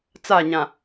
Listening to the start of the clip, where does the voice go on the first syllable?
falling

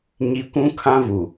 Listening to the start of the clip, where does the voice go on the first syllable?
low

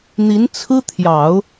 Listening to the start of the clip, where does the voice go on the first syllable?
rising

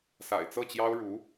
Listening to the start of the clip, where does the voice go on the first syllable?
low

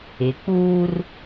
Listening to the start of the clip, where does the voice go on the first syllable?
rising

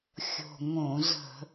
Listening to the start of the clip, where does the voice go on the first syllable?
low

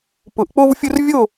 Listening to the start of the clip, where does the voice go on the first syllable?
rising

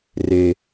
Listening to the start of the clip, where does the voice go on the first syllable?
low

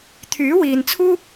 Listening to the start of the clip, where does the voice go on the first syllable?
rising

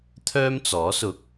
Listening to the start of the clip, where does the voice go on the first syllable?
high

